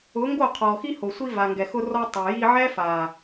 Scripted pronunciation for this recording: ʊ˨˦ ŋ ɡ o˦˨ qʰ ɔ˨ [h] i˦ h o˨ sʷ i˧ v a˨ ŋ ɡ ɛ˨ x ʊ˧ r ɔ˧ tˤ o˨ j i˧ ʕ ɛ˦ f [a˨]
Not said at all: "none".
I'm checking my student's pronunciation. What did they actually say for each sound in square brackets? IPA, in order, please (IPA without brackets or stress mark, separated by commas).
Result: x, a˨